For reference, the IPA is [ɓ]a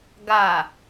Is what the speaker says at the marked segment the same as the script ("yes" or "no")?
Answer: no